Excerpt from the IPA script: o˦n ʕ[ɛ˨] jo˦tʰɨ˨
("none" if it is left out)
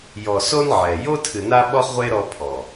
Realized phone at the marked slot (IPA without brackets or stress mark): ɛ˨